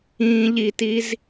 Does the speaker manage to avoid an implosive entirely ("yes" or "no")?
yes